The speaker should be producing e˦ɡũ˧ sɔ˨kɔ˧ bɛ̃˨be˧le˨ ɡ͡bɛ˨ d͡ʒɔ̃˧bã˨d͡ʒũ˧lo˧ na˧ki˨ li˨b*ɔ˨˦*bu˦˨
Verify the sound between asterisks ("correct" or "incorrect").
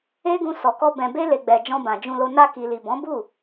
incorrect